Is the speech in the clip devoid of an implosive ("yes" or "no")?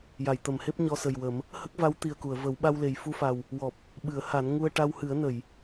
no